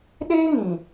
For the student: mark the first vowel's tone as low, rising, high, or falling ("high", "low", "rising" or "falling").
high